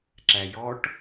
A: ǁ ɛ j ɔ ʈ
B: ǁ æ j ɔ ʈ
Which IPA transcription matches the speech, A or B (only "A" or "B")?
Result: B